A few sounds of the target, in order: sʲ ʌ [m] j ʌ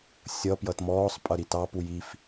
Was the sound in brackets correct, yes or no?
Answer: no